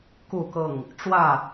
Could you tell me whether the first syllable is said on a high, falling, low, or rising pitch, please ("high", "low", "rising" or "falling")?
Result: falling